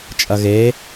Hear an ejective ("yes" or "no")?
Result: yes